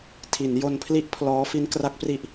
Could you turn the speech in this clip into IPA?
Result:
tʰ i˩˦ n j o˧ n pʰ l i˥˩ ʔ pʰ l ɔː˦˥ f i˦˥ n k r a˦˥ k̚ p r i˦˥ ʔ

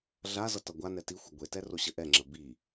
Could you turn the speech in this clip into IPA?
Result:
ɮ a z ʌ t ʌ ɡʷ a n ɛ t i xʷ ʌ ɡʷ e t ɛ r o ɕ ə ʔ ɛ ŋ͡ǁ ə b i

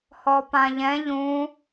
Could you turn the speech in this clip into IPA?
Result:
h ɔ p ã ʎ ɛ̃ ʎ ũ

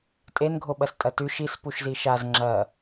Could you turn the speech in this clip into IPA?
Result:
tʼ e n ɡʱ o ɓ ɐ s tʼ ɐ t ʉ ʃ i s p u ʃ z i ʃ a z ŋ͡ǁ ɐ

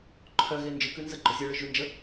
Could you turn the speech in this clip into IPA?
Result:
ǃʰ œ ɣ e n d͡ʒ ɯ k ʉ n z ə ɡ͡ǃ œ zʲ ə˞ ɭ ɯ ʒ ʉ n d͡ʒ ə

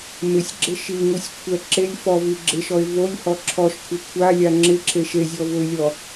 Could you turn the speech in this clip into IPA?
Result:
m ɪ sʲ ɡ͡ǁ ɪ ʃ i ŋ u sʲ kʷʰ ɛ ǁ e lʲ f ɔ v i ɡ͡ǁ ɪ ʃ ɔ ɪ̯ v o lʲ h ɔ ǁʰ ɔ ʃ kʷʰ ɪ kʷʰ a lʲ a ŋ͡ǁ ɪ ǁ e ʃ e zʲ ɔ v ʊ ɪ̯ lʲ ɔ

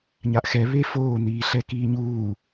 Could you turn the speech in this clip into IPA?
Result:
ɲ a ʔ x ɛ β e f oː n̪ iː ɬ ɛ k iː ɲ uː

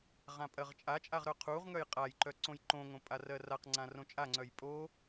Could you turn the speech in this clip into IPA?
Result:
ʁ ã pʼ ɜ ʁ t͡ʃʼ a t͡ʃʼ a ʁ ɾ œ qʰ u ʁ ŋ œ j qʼ a j ǃ œ ǀ õ j ǃ õ ŋ õ pʼ a r ɜ r a q ŋ͡ǀ ã r õ t͡ʃʼ a ŋ͡ǀ œ j pʼ o

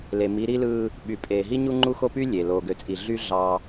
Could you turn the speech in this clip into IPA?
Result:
l e˨ m i˨˦ ɾ i˦ l ɯː˦ | ɓ y˨ pʼ eː˨ ɦ i˦ ɲ u˦ ŋ͡ǃ u˦ x o˦ p y˦ lʲ e˨ l oː˨ ɡ ø˨ t͡sʼ i˨ ɮ y˦ ɮ ɑ˦

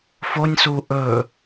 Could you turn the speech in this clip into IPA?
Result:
f o nʲ s u ʔ ɵ

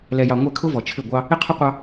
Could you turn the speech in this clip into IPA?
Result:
l ɛ˨ j ɑ˨ ŋʷ ɛ˦˨ kʰ ʊ˦ v ɔ˨ t͡ʃʰ ɪ˦˨ ɡʷ ɑ˦ | ɪ˦ qʰ ʊ˦ qʷ ɑ˦

